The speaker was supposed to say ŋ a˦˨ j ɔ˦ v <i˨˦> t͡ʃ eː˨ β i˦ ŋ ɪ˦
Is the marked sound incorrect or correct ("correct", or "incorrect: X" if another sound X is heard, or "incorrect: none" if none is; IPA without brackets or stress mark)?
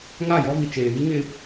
incorrect: i˨